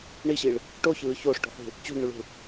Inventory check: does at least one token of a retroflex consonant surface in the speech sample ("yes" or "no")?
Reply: yes